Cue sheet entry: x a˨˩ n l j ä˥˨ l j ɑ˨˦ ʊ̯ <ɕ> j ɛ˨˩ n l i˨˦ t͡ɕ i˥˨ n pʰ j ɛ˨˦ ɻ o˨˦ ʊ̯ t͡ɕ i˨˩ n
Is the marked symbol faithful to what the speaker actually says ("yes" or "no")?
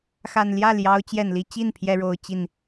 no